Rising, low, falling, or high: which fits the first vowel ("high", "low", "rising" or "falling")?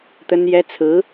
high